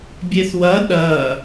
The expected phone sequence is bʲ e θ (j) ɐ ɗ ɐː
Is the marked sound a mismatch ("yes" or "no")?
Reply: yes